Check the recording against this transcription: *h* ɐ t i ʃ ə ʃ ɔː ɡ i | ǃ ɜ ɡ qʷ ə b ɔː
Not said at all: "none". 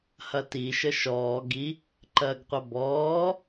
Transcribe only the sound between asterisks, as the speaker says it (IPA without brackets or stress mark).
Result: h